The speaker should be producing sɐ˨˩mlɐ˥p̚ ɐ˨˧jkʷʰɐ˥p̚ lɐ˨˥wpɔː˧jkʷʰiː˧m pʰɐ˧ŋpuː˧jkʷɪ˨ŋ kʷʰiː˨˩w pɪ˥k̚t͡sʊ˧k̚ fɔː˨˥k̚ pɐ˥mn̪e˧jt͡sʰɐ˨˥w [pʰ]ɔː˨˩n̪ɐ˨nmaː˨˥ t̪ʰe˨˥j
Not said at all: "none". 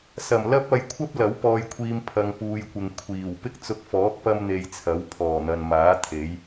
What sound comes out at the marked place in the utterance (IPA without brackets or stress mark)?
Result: pʰ